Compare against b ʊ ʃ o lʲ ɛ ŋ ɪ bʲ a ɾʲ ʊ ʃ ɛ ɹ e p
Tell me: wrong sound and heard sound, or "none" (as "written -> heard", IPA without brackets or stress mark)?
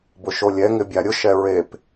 none